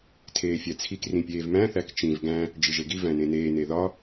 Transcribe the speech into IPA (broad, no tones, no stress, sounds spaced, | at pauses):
tʰ eː fʲ æ t͡sʰ i k r ĩ pʲ eː v m æ̃ θ æ k t͡ʃ ĩ v ɡ æ̃ | d͡ʒ i ʒ e ɡ i v æ̃ n ẽ n eː n e ð ɒ